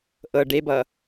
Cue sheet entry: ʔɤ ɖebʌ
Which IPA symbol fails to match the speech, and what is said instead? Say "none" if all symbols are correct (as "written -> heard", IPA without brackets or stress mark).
none